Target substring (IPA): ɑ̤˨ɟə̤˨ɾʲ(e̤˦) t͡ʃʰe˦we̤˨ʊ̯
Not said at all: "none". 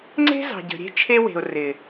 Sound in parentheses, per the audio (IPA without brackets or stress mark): e̤˦